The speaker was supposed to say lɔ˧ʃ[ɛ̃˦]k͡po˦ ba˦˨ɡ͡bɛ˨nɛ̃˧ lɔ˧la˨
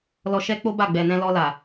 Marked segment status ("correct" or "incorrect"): incorrect